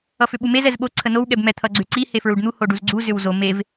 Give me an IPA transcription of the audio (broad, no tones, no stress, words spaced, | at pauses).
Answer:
ʌfʏɓumez ɛzɓo ǀʰənow ɠɛbmɛ t̪ʰʌɡ͡ǀʏǀi hefɹuɖn̪u hoɖuzɡ͡ǀu zʏwzo mev